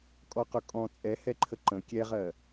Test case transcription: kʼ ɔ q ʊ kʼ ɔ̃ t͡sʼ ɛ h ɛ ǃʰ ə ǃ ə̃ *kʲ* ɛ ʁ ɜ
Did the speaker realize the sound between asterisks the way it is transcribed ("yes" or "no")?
yes